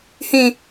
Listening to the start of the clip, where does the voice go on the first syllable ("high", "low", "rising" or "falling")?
high